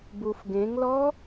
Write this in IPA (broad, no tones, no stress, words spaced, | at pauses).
bufɡẽŋlɔ